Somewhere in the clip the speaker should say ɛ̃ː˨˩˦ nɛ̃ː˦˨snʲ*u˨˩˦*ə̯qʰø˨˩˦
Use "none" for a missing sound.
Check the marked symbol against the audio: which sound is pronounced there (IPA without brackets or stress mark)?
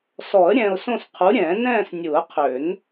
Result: u˨˩˦